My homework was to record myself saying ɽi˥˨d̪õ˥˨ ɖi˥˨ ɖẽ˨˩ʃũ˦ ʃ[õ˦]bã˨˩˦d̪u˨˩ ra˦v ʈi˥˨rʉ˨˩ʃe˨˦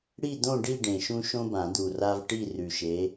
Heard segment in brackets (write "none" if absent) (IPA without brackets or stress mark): õ˦